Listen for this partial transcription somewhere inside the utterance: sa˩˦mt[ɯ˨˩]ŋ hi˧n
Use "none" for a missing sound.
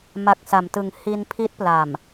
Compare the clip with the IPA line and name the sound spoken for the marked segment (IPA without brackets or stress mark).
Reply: ɯ˨˩